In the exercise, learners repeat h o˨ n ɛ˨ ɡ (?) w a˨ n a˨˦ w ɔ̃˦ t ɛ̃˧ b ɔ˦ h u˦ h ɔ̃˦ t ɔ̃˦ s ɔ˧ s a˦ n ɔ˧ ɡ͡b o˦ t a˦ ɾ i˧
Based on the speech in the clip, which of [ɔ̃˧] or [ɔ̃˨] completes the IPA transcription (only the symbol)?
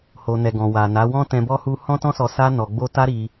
ɔ̃˨